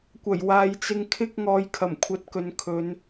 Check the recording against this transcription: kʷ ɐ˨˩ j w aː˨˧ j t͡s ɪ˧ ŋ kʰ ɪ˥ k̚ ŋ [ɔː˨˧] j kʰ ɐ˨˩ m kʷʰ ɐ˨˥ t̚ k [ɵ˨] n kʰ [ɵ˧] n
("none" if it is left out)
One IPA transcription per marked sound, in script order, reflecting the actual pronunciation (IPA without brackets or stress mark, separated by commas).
ɔː˨˧, ɵ˨, ɵ˨˧